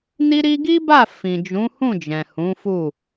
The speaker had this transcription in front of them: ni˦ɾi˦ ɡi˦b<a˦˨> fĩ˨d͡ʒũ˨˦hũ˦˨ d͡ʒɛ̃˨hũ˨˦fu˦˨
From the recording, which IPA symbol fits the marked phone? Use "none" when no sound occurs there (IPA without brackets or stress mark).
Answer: a˦˨